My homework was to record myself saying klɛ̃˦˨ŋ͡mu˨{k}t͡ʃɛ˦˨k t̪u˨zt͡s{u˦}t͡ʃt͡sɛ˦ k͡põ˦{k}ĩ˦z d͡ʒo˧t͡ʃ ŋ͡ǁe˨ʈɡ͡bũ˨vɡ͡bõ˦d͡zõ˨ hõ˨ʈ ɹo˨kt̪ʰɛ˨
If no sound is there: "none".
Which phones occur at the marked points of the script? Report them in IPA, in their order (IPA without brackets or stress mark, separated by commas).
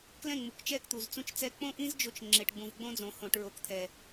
k, ũ˦, ʔ